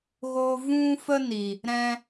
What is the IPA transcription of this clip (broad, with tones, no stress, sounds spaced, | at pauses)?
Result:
ɣ oː˧ v ũ˧ f ə˧ n i˨ | ɾ ɛ̃˧